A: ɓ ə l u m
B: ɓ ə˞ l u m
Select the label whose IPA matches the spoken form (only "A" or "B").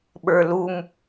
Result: B